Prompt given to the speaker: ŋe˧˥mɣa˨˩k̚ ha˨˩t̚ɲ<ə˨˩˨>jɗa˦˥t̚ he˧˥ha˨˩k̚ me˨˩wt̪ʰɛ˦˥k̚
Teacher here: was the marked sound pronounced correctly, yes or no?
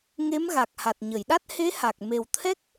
yes